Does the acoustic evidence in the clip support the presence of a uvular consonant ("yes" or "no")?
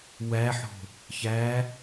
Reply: no